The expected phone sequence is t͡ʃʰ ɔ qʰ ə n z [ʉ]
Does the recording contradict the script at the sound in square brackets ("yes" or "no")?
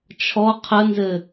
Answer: yes